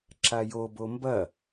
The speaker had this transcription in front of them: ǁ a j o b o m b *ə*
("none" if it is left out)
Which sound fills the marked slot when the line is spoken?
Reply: ɐ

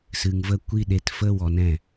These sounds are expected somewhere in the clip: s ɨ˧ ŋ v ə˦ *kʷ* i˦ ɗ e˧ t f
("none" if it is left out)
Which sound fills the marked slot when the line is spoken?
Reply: kʷ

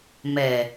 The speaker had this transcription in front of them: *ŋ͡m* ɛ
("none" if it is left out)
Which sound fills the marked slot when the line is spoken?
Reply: m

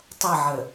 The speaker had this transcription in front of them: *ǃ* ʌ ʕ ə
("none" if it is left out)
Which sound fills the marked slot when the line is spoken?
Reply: tˤ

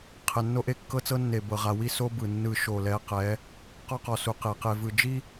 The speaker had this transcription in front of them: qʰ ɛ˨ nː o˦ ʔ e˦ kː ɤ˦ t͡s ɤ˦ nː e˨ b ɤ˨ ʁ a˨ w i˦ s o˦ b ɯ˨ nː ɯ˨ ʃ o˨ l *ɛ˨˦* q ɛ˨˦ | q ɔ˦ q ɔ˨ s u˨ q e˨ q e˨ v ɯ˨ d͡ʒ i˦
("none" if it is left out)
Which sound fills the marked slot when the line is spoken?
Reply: ɛ˨˦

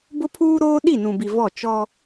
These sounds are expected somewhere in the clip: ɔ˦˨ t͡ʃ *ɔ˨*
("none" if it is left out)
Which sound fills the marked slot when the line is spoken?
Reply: ɔ˦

